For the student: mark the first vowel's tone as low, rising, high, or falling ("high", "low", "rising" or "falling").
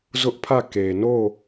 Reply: high